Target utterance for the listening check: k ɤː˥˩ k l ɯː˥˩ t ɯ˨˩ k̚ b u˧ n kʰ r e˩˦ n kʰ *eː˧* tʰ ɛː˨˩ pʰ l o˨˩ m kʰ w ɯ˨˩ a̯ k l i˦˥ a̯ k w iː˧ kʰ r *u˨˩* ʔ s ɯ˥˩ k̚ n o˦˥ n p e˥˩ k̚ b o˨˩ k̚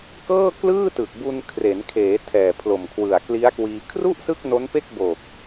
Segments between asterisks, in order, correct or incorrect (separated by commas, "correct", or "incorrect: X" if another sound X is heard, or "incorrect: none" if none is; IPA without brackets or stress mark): incorrect: eː˩˦, incorrect: u˥˩